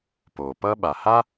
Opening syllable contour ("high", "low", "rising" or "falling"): low